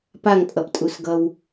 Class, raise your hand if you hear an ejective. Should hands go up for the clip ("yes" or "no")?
yes